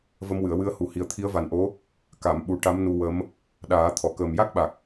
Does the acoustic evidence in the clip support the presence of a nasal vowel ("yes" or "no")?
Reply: no